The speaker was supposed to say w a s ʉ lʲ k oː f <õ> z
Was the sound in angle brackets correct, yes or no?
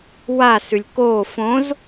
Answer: yes